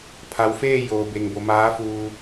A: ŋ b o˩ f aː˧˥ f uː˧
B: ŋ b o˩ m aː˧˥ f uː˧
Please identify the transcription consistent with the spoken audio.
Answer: B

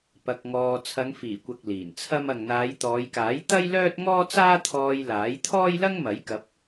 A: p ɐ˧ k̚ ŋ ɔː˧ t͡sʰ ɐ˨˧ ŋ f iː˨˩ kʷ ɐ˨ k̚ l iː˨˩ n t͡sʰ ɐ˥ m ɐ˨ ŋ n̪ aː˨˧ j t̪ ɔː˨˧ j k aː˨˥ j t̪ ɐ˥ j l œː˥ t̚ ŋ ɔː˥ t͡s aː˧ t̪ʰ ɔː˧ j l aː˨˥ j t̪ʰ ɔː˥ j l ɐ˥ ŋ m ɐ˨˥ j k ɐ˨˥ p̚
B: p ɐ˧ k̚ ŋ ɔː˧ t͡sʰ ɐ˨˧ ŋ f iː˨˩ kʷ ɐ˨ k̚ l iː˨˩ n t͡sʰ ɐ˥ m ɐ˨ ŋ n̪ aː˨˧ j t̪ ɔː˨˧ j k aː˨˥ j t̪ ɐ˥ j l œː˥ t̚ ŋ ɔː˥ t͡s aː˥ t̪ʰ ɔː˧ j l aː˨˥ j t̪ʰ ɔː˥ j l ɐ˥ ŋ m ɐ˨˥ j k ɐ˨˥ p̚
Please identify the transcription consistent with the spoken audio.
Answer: B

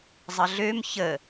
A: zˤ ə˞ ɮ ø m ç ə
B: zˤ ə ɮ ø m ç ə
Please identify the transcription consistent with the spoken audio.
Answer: B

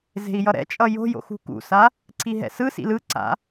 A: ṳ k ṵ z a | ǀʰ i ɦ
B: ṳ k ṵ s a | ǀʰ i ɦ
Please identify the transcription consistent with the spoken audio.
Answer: B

